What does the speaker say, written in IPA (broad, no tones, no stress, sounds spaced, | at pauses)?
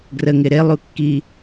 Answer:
ɡ r ə ŋ ɪ ɾ e lˠ u kː i